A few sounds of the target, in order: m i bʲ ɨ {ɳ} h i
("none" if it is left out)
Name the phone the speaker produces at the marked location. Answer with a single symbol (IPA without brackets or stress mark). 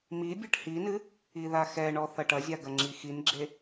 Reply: ʈ